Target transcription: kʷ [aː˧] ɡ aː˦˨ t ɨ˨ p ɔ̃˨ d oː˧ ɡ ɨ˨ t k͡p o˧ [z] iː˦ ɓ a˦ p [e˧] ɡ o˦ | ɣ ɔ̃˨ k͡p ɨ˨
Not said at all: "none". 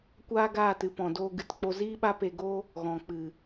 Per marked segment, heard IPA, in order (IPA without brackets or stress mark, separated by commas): aː˦, z, e˧